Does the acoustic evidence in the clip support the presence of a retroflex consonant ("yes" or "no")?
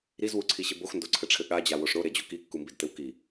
yes